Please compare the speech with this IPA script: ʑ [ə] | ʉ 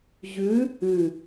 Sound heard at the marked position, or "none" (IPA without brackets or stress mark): ʉ